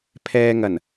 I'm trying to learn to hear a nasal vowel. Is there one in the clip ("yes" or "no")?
no